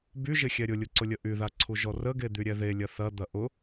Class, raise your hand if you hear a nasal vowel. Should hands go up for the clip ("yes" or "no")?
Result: no